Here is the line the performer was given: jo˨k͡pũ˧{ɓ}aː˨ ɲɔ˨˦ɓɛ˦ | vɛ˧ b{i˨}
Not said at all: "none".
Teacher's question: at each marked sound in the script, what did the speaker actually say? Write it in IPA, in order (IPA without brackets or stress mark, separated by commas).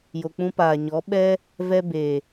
p, e˨